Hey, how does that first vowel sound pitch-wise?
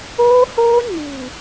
high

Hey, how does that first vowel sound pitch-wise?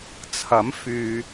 rising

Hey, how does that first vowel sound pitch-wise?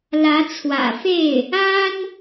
rising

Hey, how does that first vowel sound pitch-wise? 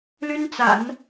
high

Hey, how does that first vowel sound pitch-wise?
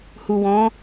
low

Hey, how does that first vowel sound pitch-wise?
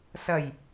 low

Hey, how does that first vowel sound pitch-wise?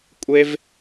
high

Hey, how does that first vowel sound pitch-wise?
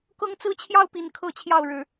high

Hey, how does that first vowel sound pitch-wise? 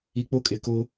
low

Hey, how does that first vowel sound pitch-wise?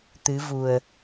rising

